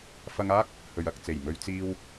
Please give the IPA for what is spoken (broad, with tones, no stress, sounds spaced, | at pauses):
f ɐ˧ ŋ aː˥ k̚ | h ɵ˨ ɥ ɐ˨ k̚ t͡s e˨˩ j m ɵ˧ ɥ t͡s iː˧ w